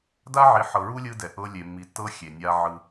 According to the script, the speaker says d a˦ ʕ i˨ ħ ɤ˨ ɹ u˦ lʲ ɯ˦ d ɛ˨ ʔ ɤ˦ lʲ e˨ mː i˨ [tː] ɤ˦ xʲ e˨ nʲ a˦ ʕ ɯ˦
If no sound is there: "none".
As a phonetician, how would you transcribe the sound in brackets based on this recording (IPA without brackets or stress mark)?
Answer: tː